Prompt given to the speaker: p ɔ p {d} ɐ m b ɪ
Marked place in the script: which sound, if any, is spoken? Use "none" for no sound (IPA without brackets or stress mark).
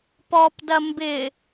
d